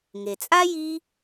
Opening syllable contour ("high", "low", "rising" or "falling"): low